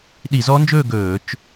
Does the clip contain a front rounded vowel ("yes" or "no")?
no